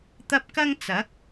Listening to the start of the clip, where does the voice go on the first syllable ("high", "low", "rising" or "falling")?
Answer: high